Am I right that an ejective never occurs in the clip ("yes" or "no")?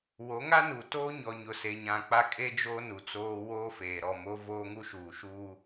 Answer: no